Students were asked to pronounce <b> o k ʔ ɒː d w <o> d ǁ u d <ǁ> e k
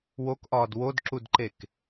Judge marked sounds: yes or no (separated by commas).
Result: no, yes, no